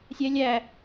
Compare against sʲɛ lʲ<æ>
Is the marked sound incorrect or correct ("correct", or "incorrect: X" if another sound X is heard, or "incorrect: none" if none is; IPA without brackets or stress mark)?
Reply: correct